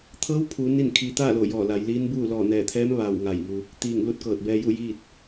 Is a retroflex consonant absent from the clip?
yes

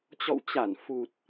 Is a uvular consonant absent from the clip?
yes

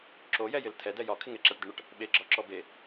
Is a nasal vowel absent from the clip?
yes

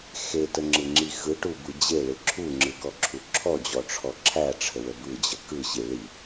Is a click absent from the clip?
no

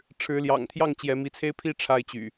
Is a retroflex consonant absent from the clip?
no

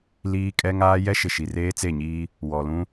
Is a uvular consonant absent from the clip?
yes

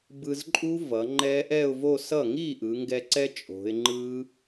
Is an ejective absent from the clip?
no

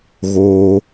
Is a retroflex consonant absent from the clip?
yes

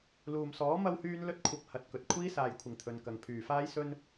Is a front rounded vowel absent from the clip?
no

